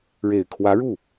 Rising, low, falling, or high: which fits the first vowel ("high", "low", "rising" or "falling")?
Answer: low